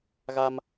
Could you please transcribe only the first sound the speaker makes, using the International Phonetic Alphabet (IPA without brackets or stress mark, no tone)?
ɣ